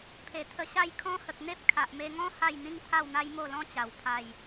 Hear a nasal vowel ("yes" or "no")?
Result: yes